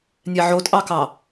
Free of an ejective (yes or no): no